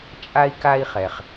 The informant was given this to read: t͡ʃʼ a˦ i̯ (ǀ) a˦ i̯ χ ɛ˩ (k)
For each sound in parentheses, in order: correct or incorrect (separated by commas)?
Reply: incorrect, incorrect